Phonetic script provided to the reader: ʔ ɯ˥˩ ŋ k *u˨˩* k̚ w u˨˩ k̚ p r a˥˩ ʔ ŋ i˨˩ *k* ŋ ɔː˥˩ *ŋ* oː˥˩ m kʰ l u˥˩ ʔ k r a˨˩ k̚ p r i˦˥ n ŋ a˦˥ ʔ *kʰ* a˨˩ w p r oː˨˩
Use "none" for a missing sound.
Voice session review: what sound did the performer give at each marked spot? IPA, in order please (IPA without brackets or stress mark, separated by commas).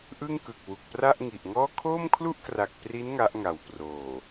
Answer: ɯ˨˩, ʔ, kʰ, ŋ